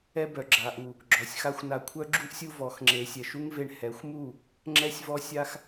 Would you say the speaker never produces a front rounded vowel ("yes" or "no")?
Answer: no